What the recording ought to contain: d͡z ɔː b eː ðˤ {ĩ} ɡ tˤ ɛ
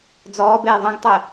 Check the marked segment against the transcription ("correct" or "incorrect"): correct